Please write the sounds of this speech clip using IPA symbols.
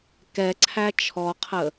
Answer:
kɛ ǀʰæt͡ʃʰɔqʰə

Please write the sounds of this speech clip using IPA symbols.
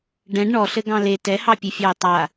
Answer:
ɖɛ̃ɖ ɳɔɬɘɡɑ̃ le tɛhɑpʲɨfʲɑɪ̯ tˤa

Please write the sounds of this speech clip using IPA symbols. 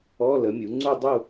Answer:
ɔ˧˥˧ lə˩˥mʲu˩˥ŋ͡ǀu˥˧ dˤu˥˧

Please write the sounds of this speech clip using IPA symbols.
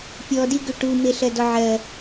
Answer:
pʲɔdiɡʏ ʈume ɬɜdɔʕɜ

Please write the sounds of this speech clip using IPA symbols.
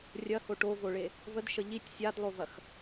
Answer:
rʲɐho ʈovoɭe | vədʃə ʎitʲ sʲadlˠovɐx

